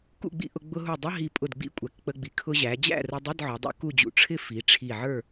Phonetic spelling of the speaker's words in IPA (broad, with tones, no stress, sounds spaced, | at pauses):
k ṵ˥˨ ɡ͡b ḭ˥˨ ʔ ʊ˧ ɡ͡b ʊ˧ ɦ u˧˩ dˤ ʌ˧˥˧ ɦ i˧˩ pʼ ʊ˧˩ d ɡ͡b ḭ˧˥˧ kʷʼ æ˩˧ k k͡p ə˧ ɡ͡b i˩˧ kʰ ʊ˧ ʑ æ˩˧ d͡ʑ æ̰˥˨ r ə˧ dˤ ɪ˧˥˧ d ʕ ʊ˩˧ dˤ ṵ˧ k u˥˨ d͡ʑ ṵ˧˩ ʈ͡ʂʰ ɪ˥˨ f i˩˧ ʈ͡ʂʰ i˧˩ ʕ ə˞˥˨